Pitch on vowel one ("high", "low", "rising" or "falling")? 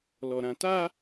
low